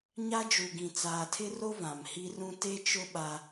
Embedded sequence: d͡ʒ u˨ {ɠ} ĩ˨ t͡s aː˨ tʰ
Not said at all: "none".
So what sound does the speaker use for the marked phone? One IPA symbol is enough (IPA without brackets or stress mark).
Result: ɡ